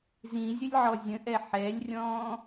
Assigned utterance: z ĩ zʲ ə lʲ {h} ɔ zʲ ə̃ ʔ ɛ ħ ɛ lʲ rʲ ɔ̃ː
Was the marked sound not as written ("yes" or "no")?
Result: yes